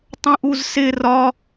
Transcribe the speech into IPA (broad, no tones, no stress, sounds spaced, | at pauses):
tˤ ə̃ ʔ u z s ɪ r ɒ